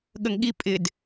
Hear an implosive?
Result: yes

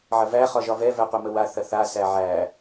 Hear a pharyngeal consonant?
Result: yes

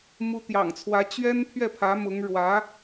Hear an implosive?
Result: no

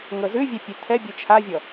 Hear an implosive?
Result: no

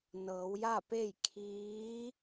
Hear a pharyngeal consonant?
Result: no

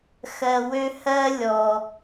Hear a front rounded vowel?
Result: yes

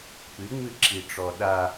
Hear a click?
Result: yes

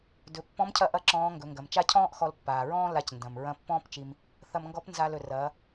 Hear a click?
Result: yes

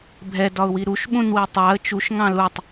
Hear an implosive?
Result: yes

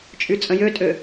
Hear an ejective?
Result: yes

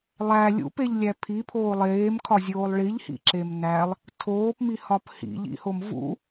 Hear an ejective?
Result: no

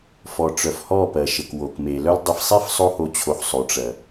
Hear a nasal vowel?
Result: no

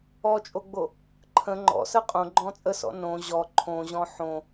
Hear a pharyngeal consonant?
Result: yes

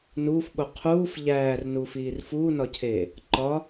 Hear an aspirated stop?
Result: yes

